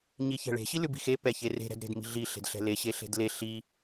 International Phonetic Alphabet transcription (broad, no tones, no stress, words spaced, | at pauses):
ɲiçɛ̤ɭe̤ ɕilʉbi̤xe pɛçere̤ ɾɛ̤dɾe̤dmi̤ɮi ɬe̤dɬɛ̤le ɕeɬe̤dle ɬi